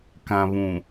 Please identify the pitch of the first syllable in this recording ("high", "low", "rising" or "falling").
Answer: low